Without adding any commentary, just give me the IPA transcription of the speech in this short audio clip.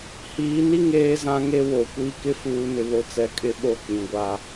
h iː˨˦ n i˦ ŋ eː˦ z ã˦ ŋ e˦ w o˨ kʷ i˦ k ɪ˦ f uː˦ n ɪ˦ β o˦ t͡s ɛ˦ kʼ ɪ˦ ɓ o˦˨ k͡p ĩ˨ ɡʷ a˦

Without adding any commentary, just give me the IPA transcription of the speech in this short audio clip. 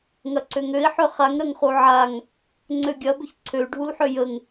ŋ ɐ ǀ ø ŋ ø i̯ ħ ø χ a ŋ ɾ ɐ ŋ χ u ʕ a ŋ | ŋ͡ǀ ø ɡʲ ɐ b ʏ ç ǀʰ ø y̯ ɖʱ u l ħ ø j ə ŋ

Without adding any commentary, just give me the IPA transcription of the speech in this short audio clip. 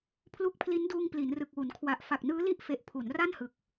pʰ l u˦˥ k̚ pʰ l i˦˥ n d uː˧ ŋ p l i˩˦ n r ɯ˨˩ k̚ w u˩˦ n kʰ w a˨˩ ʔ f a˨˩ k̚ n ɯː˦˥ l i˥˩ ʔ f e˨˩ ʔ pʰ u˩˦ n r a˥˩ n h ɯ˨˩ k̚

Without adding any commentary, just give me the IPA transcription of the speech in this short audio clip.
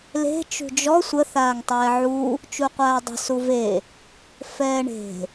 l e̤ t͡ʃ ṳ d͡ʒ ɔ sʷ ə θ aː ŋ tˤ ɛː ʕ u | t͡ʃ u qʷ aː dˤ ə̤ s u v e | f ɛː ɳ e̤

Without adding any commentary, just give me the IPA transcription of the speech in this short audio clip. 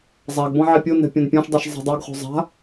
zˤ a ɡ b ɔ̃ ʕ i pʲ o n ɛ̤ pʲ ɔ̃ n pʲ ɔ̃ ʃ dˤ ɛ ʃ zˤ i̤ dˤ ɪ ɡ χ o̤ zˤ a̤

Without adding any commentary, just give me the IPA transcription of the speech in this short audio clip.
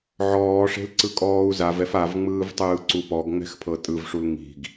ʕ ɔː ʂ e̤ l ǀ ɯ kʼ ɔː u̯ z a v ɛ f a v ŋ͡m ɯː v tˤ ɯː ǀ u p ɔ ɡ ŋ͡m ɛ̤ x pʰ ɤ tʼ ɯ v ʂ u l ŋ i̤ ɡ

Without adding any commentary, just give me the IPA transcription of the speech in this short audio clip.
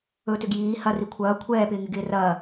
ɵ t ʏ ɡ j iː h ɐ r i kʷʰ ɐː kʷʰ ɛː p ɪː ŋ ɪ ɡ ɪː r ɐː

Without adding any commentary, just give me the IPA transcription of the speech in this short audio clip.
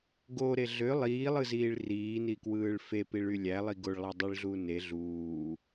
ɡ o ɾ e ɮ ø lˠ iː lˠ ɯ z iː ɭ r iː n i k w ɯː ɭ f e p i ɭ y lʲ æ lˠ i ɡ o ɭ lˠ æ dˤ i ɭ ɮ uː n e ɮ uː

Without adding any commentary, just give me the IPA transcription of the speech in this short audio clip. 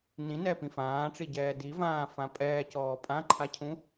n ĩ n ɛ p ĩ f ãː ʈ͡ʂ i ɟ ɛː d i v ãː f ã pʼ ɛː c ɔː pʼ ã ǃʰ a cʰ ũ

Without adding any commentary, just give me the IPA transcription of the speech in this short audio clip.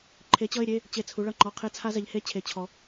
ǃʰ e˨˥ t͡ɕ ʌ˧˥˧ ɪ̯ ɾʲ e˧˥˧ | t͡ɕ e˦˨ t͡sʰ u˨˥ ɭ ʌ˦˨ ŋ͡ǃ ɔ˧˥˧ qʰ e˦˥ t͡sʰ a˦˥ z ɛ˨˥ ʎ h e˦˥ t͡ɕʰ e˧˥˧ t͡ɕʰ ɔ˦˥

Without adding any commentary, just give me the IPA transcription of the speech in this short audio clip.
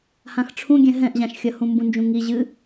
h ã x ʈ͡ʂʰ ũ ɡʲ ɛ̃ ɦ ɛ̃ ʔ ʑ ã ʃ xʲ ɐ h ũ m b ũ n d͡ʒ ũ ŋ i ʑ ɨ

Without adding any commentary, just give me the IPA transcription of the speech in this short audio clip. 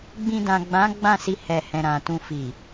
ɡ͡b ĩ˧ d ã˨ ɡ͡b ã˨˦ ɡ͡b ã˦˨ s i˧ h ɛ˨ h ɛ̃˨ ɾ ã˨ t ũ˧ f i˨

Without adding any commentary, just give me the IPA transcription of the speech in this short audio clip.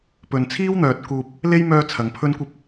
p ɵ˨ n t͡sʰ iː˥ w n̪ œː˨ t̚ k uː˨ p̚ | l e˥ j m œː˧ t͡sʰ ɐ˨˧ ŋ pʰ ɵ˥ n kʷ ɐ˥ p̚

